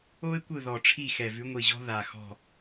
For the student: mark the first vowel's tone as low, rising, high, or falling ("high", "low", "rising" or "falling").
high